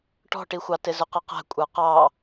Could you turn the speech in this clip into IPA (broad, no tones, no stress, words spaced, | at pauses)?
ʈɔ̤ʈixʷɑ tɪzʊqʌqæ̤ kʷʼə˞qɑ